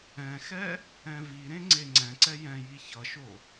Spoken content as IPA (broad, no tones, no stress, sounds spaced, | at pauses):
ɛ̃ x ɛ | ɛ̃ v i ɾ ẽ ŋ͡ǀ e ŋ͡ǀ ɛ̃ ǀ ɛ j ɛ̃ j i ç ʌ ʃ o